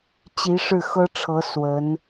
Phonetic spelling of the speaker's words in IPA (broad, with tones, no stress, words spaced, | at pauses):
t͡ɕi˧˥ʂɻ̩˥˩xɤ˥ʈ͡ʂʰɤ˧˥ swə˧˥n